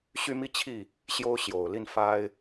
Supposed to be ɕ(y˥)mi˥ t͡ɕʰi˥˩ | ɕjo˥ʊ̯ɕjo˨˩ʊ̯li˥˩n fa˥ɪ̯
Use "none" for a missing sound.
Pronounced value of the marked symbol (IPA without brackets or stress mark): y˥